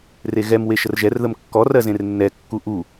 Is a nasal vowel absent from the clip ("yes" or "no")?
no